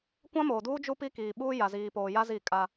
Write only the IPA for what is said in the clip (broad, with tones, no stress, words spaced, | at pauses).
kʷã˦moː˨duː˦ d͡ʒu˦pi˦kiː˨ɓuː˦ ja˨ziː˨ poː˨ja˦ zi˦˨kʼa˦